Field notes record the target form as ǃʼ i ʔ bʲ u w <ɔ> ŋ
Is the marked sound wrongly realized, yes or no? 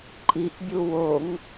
yes